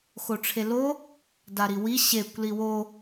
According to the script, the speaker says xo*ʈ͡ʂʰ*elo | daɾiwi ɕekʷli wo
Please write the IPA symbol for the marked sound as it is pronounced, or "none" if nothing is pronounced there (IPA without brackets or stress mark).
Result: ʈ͡ʂʰ